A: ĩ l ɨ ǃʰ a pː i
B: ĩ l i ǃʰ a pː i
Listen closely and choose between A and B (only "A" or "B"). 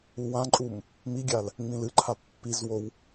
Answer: A